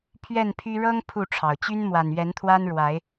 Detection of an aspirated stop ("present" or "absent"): present